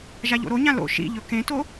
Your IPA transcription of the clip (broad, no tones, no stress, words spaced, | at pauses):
ʒaʎo̰ɾoɲã lo̰ ʃḭʎɵ kẽto